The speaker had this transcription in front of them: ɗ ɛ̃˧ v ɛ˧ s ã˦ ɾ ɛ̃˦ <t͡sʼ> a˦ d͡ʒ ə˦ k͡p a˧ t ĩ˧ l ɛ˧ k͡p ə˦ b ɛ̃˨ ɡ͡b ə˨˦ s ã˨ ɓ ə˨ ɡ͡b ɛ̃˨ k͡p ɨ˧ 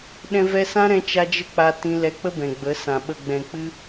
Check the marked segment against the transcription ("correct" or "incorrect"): incorrect